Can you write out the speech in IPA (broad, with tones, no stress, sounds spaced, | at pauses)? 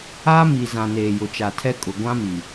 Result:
aː˦ m i˨ z ã˨ n eː˨ j ʊ˨ t͡ʃ a˨ tʰ ɛ˦ kʼ ʊ˨ ɡʷ ã˦ m i˨